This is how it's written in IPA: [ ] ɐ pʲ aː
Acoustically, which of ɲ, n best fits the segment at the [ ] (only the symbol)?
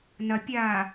n